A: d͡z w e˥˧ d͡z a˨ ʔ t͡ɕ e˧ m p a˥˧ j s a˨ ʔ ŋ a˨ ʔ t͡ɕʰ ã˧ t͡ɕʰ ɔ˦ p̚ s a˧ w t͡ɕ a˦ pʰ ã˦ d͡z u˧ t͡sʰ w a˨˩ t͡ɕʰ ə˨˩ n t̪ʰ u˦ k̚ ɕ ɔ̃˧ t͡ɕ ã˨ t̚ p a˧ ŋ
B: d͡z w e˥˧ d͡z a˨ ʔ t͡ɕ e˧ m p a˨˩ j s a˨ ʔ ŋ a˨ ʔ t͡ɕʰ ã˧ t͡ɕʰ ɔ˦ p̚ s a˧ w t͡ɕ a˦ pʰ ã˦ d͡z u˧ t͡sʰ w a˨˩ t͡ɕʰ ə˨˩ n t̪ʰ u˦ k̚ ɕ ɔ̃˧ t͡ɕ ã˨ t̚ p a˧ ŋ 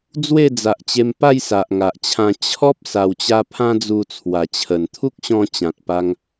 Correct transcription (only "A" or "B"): A